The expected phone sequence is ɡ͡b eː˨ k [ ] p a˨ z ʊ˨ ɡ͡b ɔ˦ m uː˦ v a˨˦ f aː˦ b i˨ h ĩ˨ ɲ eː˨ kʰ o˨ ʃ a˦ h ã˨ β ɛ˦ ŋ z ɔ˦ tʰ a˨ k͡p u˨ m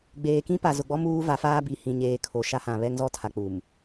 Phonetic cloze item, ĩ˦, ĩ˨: ĩ˦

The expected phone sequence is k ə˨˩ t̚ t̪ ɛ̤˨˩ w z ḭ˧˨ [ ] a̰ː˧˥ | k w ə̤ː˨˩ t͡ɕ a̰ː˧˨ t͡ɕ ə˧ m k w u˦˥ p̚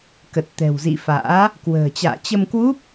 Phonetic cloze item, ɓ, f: f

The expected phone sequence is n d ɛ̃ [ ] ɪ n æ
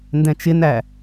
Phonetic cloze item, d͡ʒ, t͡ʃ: t͡ʃ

